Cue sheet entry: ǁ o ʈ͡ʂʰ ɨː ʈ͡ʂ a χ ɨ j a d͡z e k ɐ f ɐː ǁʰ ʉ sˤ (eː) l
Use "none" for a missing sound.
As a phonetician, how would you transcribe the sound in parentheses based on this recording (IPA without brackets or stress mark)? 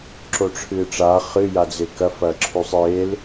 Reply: eː